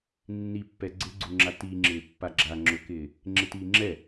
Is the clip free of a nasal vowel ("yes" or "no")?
yes